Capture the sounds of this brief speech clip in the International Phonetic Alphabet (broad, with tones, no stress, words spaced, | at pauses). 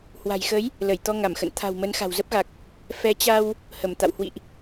hwa̤˨˩jxə˨˦j | lə˧˩jt̪ɔ˧ ŋa˧˩mxə̰˧˨n t̪ʰa̤˨˩wmə˨˦n xa̤˨˩wzə˦˥p̚ɣa˨˩k̚ | fɛ˨˦t͡ɕa˧w | hə˧˩mt̪a̰˧˨w hwḭ˧˨ʔ